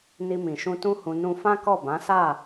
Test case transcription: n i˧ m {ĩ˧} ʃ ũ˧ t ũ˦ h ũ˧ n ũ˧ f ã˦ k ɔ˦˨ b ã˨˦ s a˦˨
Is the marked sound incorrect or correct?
incorrect